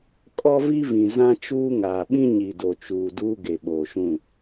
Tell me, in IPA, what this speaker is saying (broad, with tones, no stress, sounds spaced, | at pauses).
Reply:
kʼ ɔ˦ v i˦ v ĩ˨ z ã˦ t͡ʃ uː˦ ŋ aː˨ ɓ ĩ˦ ɲ i˨ d o˨ t͡ʃ uː˨ d uː˦ ɡ e˨ ɓ oː˨ ʃ ũ˦˨